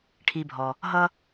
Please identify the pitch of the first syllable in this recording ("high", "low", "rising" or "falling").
low